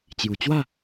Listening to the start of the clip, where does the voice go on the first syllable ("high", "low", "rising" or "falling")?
low